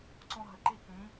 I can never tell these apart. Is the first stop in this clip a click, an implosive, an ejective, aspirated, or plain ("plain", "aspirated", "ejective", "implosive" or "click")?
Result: click